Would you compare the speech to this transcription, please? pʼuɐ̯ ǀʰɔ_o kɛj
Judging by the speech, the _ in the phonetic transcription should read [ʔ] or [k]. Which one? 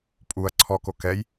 k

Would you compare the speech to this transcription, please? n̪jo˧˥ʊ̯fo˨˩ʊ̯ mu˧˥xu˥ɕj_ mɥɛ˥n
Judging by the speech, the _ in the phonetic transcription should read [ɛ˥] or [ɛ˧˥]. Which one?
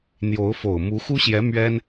ɛ˧˥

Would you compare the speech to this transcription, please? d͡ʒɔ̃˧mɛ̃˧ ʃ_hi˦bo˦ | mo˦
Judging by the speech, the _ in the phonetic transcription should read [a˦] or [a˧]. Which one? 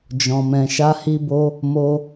a˦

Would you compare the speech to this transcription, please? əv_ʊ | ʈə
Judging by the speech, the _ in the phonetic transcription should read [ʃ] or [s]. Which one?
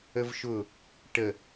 ʃ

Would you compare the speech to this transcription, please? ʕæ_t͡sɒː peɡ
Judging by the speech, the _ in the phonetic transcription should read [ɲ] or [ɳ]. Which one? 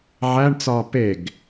ɳ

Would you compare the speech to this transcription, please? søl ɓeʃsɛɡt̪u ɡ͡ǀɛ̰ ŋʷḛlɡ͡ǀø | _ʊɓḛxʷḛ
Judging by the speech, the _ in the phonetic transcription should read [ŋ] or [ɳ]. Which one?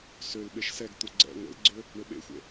ɳ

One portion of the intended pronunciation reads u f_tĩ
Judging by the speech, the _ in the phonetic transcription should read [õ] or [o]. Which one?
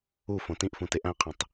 õ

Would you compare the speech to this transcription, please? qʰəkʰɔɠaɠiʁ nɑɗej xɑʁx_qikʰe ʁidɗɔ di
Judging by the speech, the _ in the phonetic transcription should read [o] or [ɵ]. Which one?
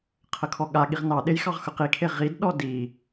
ɵ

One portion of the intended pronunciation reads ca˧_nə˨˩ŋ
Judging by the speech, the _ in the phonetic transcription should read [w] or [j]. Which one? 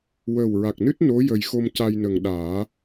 j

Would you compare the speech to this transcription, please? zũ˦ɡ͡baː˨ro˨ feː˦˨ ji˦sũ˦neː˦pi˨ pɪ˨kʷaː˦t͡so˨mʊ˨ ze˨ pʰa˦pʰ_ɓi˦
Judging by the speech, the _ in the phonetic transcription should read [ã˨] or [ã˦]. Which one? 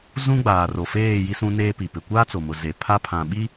ã˨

